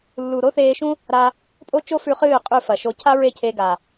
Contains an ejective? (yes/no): yes